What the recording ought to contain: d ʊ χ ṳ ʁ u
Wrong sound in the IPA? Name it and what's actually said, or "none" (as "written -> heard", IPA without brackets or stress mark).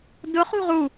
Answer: none